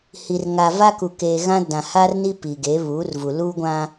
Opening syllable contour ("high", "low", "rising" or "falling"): low